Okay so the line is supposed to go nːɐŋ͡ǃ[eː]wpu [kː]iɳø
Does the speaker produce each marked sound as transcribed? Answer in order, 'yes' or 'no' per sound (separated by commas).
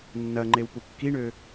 no, yes